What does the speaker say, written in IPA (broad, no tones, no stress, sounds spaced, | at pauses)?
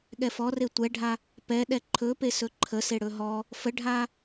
ɠ ɛ f ɔ r e tʷ ɛ ɖʱ a | p ɛ ɗ ɛ ǃʰ ɵ p e s ɵ ǃʰ ə s e ɽ ɵ ɦ ɔ | f ə ɖʱ a